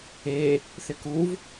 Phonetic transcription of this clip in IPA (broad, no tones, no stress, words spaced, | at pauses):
e | θɪkuv